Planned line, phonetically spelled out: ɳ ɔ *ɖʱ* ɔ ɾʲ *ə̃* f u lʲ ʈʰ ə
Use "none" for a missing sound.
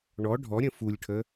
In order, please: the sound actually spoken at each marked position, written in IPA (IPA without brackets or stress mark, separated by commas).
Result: ɖʱ, ə̃